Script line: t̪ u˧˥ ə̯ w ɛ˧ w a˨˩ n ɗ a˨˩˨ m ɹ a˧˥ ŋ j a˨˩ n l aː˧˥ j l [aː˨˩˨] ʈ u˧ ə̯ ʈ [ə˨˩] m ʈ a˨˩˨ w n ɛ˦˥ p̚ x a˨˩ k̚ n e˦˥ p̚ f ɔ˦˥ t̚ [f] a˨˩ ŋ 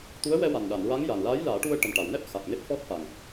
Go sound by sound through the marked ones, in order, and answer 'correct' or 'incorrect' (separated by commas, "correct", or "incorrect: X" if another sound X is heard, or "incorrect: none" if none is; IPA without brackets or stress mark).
incorrect: aː˨˩˦, correct, correct